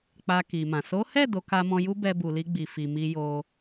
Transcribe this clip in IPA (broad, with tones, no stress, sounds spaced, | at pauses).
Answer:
k͡p a˧ k i˨ m ã˨ s o˨˦ h ɛ˦˨ d o˨˦ k a˧ m ɔ̃˧ j u˦ b ɛ˧ b u˨ l i˧ ɡ͡b i˨ f i˨ m i˧ j o˧